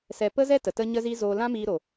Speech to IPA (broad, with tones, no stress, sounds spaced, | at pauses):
s ɛ˧ p ə˦ z ɛ˦ t ə˨ t ə˦ ɲ ə˦ z iː˦ z oː˧ l ã˦ m iː˧ ɾ o˨